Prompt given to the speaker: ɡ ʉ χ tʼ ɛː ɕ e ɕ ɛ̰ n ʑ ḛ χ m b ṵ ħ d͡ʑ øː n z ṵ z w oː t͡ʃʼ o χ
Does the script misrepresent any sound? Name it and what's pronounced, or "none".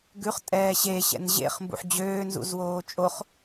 none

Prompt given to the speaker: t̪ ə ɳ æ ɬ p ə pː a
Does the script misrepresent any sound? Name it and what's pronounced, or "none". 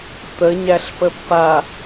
ɳ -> ɲ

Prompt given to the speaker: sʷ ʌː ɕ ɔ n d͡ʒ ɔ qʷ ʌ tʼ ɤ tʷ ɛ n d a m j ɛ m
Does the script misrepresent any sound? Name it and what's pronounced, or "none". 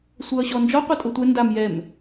none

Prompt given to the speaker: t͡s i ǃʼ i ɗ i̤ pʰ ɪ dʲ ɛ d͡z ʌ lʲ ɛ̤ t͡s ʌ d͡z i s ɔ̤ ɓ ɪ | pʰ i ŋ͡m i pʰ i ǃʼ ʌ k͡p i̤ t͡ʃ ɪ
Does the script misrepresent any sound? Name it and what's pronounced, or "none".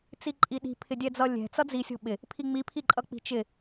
s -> sʲ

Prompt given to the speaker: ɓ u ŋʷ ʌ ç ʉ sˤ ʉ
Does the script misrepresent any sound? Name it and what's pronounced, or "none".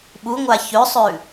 ʌ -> a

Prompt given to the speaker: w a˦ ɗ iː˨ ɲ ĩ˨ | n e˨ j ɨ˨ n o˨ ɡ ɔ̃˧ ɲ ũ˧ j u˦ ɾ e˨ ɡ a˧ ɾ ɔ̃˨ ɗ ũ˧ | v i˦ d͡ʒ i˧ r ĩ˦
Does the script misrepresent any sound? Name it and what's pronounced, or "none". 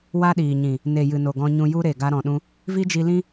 r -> l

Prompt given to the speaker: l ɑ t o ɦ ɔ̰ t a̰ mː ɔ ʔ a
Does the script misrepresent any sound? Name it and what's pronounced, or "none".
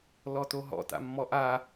ɑ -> ɔ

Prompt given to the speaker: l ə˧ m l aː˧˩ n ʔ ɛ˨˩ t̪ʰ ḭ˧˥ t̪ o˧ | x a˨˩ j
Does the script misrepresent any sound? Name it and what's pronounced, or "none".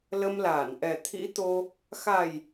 none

